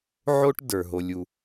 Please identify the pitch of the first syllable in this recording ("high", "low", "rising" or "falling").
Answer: high